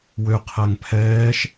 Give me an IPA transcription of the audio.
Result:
w ø qʰ æ ŋ pʰ ɛː ʃ

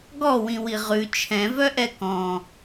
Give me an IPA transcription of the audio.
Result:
ɡ ɔ w ĩ w i ʁ ʉ t͡ʃʰ ɛ̃ v œ ʔ ɛ k ɔ̃

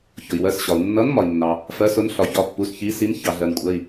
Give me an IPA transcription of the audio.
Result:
ç ʊ˩ i̯ w ɜ˩˧˩ s ɕ ɒ˩ u̯ nː ʌ˨˥ n m ɒ˩ i̯ nː ɑ˩ | f ɜ˨˥ s ʊ˨˥ n ɬ ɒ˩ ç ɒ˩˧˩ pː u˩˧˩ s ç i˨˥ s i˨˥ n ç ɑ˩ ɮ ɜ˩ n kʷʼ ɜ˩˧˩ i̯

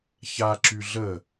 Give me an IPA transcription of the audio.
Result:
ç a ǁ y ɮ ə

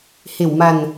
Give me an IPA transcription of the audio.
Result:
h e˨˩ w m a˨˩ n

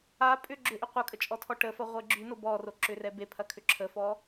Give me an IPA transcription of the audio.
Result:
a pʼ ʏ ɡ͡ǁ ʏ ʔ ʏ qʷ ɐ kʼ ə t͡ʃʼ ɔ tʰ ɔ ʈ ə f ɐ ʁʷ e ɡ͡ǁ y n o b ɔ r o ǁ ʏ r ɛ b e pʰ ɐ kʰ ʏ ǁʰ ə f ɔ

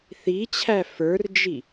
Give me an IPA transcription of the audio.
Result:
θ i t͡ɕʰ æ f ə˞ r d͡ʒ i

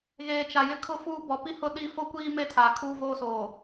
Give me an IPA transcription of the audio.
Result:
ɣ eː˨ t͡ʃ a˨ j ɪ˦ kʰ ʊ˦ f uː˦ b ɔ˨˦ p i˦ h ʊ˦ ɗ i˦ f o˦ kʷ iː˦ m e˦ tʰ a˨ kʰ uː˦ v oː˦ s oː˨

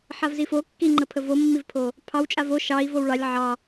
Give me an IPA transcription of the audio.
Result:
ħ a v z i f o kː i ŋ͡ǃ ə pʰ ə v o mː i v pʰ o | pʰ ɑ w t͡ʃʼ a v o ʃ ɑ i̯ v o w ɭ ɑ lʲ ʕ ɑ

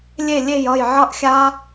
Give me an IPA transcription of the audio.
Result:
lʲ e˥˩ lʲ e˥˩ j ʌ˥˩ j ʕ ʌ˥˩ ʔ xʲ a˦˥

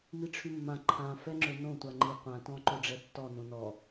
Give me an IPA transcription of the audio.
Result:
m i ʈ͡ʂʰ y mː ã ǃʰ ã f ɛ ŋ͡ǁ ø n õ tʷ a ŋ͡ǃ i qʷ ã t ɔ̃ ǃ ø ɖ͡ʐ ɛ tː ɔ n õ n ɔ

